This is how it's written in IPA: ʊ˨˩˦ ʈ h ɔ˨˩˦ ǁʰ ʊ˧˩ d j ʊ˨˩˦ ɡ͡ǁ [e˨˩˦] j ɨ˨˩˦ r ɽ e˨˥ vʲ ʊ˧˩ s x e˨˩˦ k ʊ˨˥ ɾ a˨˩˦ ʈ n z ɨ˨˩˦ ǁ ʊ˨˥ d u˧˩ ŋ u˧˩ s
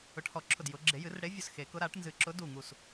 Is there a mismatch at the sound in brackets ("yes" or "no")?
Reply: no